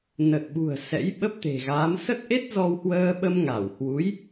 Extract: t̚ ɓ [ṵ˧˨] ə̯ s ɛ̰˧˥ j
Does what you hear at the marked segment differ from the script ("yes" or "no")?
yes